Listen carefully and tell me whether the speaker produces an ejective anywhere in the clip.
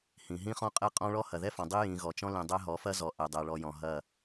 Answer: yes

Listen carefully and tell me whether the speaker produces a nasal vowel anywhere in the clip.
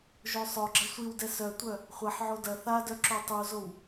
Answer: no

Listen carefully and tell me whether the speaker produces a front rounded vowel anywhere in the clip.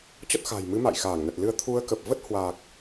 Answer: no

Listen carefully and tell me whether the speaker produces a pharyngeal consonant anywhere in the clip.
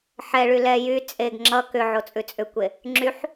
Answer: yes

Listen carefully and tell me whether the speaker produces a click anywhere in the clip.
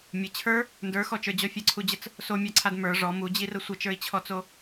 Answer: yes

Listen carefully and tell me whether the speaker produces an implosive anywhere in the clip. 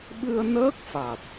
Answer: yes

